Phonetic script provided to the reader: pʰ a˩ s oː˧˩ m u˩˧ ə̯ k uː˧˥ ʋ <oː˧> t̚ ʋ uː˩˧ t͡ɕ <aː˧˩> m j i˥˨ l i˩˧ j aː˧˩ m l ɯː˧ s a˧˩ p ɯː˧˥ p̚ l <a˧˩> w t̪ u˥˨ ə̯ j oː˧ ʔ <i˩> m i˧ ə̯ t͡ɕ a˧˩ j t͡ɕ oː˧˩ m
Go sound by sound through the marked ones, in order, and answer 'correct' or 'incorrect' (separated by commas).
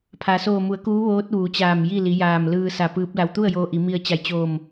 incorrect, correct, incorrect, incorrect